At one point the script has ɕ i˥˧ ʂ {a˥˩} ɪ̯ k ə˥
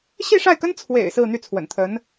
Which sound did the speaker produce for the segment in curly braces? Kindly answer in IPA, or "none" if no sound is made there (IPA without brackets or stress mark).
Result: a˥˩